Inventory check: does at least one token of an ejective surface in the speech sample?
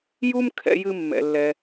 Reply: no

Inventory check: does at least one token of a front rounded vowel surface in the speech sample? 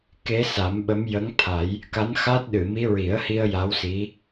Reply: no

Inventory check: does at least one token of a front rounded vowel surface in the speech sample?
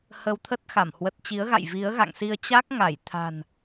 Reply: no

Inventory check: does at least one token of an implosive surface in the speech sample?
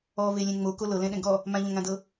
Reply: yes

